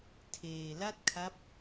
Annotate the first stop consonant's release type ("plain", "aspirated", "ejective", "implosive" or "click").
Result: aspirated